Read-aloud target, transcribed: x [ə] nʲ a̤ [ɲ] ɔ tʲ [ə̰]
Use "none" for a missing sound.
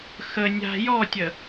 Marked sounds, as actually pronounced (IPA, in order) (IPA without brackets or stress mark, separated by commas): ə, j, ə